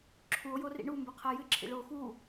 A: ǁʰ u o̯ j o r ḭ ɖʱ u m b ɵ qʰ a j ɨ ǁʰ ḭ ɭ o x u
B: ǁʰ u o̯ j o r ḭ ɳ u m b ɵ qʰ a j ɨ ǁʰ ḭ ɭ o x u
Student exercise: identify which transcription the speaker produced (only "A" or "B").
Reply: B